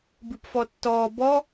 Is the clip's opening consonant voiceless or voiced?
voiced